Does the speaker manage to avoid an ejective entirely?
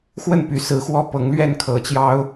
yes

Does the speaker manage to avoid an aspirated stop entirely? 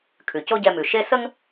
no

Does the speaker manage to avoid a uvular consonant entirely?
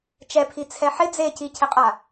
no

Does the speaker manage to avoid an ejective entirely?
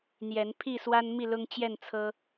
yes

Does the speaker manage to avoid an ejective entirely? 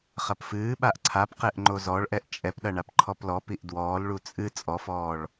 no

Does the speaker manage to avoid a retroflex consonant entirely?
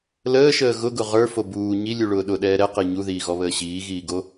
no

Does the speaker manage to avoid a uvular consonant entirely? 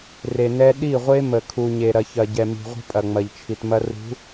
no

